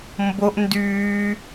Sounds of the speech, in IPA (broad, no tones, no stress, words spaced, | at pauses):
mboʔ ndyː